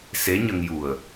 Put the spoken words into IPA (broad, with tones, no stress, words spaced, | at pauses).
se˧˥ɲə˧ŋju˨˩ə̯